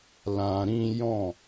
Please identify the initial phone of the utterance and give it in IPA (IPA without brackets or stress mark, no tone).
l